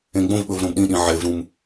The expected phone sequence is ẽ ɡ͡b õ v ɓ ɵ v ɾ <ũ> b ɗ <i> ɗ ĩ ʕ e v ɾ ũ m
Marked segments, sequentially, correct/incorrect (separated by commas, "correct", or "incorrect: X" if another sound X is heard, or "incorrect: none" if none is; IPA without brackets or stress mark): incorrect: õ, incorrect: ĩ